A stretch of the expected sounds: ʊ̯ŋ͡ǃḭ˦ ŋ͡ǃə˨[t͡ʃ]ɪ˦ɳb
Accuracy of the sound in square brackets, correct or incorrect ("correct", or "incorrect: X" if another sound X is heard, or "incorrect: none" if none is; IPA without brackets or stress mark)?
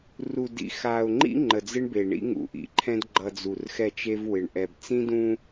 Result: incorrect: d͡z